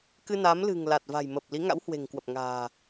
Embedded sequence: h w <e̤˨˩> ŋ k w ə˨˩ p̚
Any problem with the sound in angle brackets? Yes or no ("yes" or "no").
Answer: no